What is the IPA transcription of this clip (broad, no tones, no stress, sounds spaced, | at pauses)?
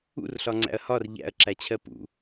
ṵ r ɬ ɒ ŋ͡ǀ æ̰ ɐ̯ h ɒ r ʎ æ̰ ɐ̯ ǁ æ t͡ɕʰ ɜ p ṵ